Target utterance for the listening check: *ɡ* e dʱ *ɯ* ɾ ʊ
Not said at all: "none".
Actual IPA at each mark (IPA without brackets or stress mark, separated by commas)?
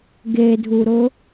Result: ɡ, u